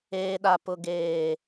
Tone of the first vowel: high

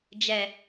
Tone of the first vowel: low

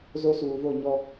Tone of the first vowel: high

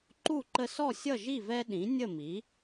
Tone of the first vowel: falling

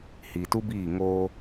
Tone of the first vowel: low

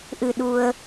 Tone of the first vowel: low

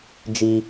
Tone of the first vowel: high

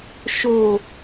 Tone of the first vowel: low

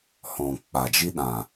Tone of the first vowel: low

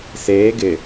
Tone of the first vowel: rising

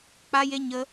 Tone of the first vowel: high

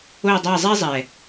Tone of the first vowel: falling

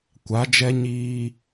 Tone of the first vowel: rising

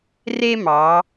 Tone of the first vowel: high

